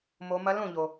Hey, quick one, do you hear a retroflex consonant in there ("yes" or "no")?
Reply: no